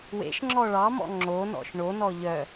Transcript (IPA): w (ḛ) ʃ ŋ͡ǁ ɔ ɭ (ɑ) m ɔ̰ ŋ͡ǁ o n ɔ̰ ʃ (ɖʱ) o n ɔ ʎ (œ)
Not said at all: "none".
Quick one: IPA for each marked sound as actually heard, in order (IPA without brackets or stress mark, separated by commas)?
ḛ, ɑ, ɳ, œ